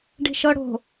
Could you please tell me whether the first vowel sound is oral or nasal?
oral